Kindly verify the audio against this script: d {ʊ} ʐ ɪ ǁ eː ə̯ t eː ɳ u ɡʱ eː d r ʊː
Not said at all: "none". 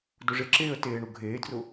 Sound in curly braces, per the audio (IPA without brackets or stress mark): ʊ